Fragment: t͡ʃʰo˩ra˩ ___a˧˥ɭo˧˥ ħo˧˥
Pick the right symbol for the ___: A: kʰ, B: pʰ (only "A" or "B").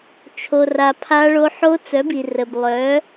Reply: B